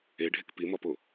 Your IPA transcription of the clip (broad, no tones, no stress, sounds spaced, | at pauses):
e ɖʱ e k p i m ɒ p o